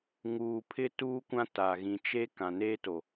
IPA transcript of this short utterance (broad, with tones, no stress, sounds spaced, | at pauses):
ŋ uː˨ pʰ ɪ˦ t uː˦ kʷ ã˦ t a˨ ɣ ĩ˨ t͡ʃ e˦ k ã˨ n eː˦ t o˨